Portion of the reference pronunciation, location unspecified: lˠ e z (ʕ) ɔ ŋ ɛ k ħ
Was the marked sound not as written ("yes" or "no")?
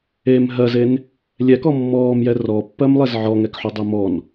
no